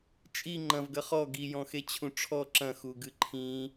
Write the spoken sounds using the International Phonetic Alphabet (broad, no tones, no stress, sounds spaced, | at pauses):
t͡ʃʼ i ŋ͡ǃ ɐ̃ v ɡ ɐ χ ɔ ɡ i j ɔ̃ x e t͡ɕʰ ũ ʈ͡ʂʰ ɔ ǁ ɐ̃ x u ɡ ɨ ǃʰ ĩ